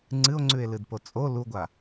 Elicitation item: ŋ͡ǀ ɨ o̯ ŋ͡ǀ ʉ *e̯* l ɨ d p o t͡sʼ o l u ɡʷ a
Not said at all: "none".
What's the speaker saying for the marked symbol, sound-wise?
e̯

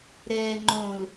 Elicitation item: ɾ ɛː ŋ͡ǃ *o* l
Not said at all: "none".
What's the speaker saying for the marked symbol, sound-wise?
õ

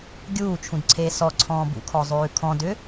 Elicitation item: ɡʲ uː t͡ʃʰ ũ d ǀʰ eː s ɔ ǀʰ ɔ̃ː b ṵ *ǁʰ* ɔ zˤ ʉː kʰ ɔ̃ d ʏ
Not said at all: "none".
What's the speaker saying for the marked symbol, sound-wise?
kʰ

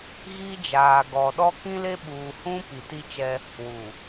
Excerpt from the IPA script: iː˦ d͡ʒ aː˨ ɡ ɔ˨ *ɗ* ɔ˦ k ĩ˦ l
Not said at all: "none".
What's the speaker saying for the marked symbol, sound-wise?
ɗ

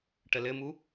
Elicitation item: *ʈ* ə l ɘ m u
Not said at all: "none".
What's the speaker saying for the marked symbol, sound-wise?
ʈ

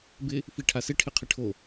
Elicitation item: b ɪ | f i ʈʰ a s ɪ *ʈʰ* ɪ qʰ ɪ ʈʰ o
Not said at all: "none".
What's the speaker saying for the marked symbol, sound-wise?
ʈʰ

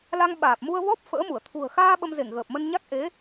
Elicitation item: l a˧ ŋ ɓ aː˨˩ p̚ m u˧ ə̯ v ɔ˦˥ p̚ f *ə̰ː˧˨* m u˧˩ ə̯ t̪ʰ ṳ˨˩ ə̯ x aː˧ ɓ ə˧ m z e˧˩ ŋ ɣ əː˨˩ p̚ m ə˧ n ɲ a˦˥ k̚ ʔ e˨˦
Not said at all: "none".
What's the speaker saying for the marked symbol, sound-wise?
ə̰ː˧˥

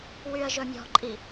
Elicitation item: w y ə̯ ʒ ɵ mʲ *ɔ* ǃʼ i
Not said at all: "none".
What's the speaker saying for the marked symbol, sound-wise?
ɔ̤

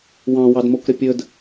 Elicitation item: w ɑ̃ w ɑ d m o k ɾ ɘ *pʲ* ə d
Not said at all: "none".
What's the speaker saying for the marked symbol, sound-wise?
pʲ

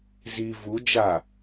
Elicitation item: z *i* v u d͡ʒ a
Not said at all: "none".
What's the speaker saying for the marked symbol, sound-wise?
i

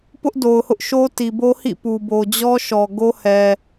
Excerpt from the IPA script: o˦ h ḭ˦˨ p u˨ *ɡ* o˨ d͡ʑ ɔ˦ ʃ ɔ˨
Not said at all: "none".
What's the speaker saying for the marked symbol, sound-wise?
b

